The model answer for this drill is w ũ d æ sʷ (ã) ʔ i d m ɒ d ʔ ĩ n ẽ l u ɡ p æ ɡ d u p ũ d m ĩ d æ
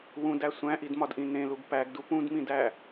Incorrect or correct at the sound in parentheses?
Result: incorrect: æ̃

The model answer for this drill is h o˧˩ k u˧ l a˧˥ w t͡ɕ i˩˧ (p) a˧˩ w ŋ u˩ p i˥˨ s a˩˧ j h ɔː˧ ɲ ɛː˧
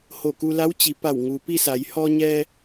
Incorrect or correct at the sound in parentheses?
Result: correct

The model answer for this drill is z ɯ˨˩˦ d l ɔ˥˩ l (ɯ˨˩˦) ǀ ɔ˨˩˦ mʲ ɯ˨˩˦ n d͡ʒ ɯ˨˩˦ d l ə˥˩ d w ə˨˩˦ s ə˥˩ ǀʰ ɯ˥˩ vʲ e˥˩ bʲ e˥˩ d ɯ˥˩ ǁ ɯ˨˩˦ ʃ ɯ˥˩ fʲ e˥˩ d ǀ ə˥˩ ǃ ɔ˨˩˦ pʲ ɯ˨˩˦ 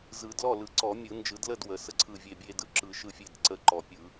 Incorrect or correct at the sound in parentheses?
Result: correct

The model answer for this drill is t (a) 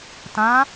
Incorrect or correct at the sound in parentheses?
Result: incorrect: ã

